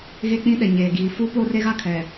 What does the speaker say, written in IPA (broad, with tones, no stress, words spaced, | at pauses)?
ɣe˦k͡pĩ˦ɗɛ˨ ɲeː˨ɡiː˨ fu˦po˦re˦ɣa˦ kʰɛ˨